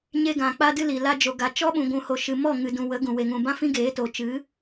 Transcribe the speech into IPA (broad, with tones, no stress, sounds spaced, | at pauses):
ɲ e˧ ɡ ã˨ k͡p a˧ d ɨ˧ l i˨ l a˦ d͡ʒ o˧ ɡ a˨ t͡ʃ ɔ˦ ɓ ũ˨ ɡʷ ũ˨ h o˨ ʃ ɨ˨ m ɔ˦˨ ŋ ɨ˨ d ũ˨ w ə˨˦ ɡ ũ˨ w e˨ ŋ ũ˨ b ã˦ f ĩ˦ ɡ eː˨˦ t o˨ t͡ʃ ɨ˨˦